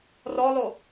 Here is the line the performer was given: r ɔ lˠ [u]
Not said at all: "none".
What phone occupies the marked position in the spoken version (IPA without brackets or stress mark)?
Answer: o